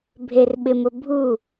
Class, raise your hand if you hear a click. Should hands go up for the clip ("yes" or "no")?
no